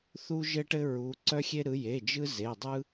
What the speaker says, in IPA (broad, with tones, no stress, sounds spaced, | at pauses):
θ u˥ ʒ ɘ˥ ʈ ɘ˥ ɹ u˨˦ ǀ œ˥ xʲ e˥ ɾ ɯ˨˦ j e˩˧˩ d͡ʒ ɯ˥ z e˩˧˩ dˤ ɯ˥